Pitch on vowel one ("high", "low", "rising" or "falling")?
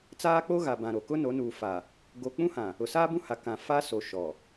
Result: high